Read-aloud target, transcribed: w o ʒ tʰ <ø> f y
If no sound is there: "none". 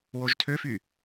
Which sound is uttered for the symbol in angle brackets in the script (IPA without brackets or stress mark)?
ø